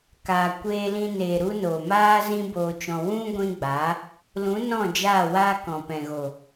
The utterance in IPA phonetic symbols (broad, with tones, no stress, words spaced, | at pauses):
kaː˨ kʷeː˧lĩ˧ neː˨ɾu˧ noː˨ maː˦ zĩ˦boː˧t͡ʃɔ̃˧ wũ˦ ɡʷĩ˦ɡ͡ba˨˦ | lũ˨˦nɔ̃˦˨d͡ʒaː˦˨ waː˦kɔ̃˨pɛ̃˨ɣo˨